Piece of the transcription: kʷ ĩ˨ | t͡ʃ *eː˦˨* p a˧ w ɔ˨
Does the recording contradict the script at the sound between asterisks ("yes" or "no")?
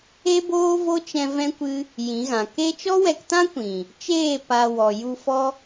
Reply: no